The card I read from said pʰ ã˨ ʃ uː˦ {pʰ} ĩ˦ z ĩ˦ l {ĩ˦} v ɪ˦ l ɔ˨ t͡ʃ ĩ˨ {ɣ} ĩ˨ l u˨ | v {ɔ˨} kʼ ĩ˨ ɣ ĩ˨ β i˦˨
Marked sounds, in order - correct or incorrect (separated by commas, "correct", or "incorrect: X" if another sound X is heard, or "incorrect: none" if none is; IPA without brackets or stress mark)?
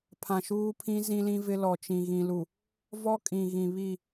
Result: correct, correct, correct, incorrect: ɔ˦